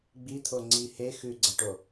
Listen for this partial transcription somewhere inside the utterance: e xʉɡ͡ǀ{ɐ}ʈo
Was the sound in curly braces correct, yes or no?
yes